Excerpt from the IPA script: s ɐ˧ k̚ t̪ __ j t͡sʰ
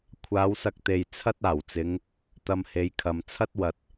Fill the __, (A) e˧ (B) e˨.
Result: B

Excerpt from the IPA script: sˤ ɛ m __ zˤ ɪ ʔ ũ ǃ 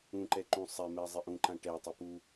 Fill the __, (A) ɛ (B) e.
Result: A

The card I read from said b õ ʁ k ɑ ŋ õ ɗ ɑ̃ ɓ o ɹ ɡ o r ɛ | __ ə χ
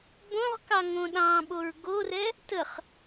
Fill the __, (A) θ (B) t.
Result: B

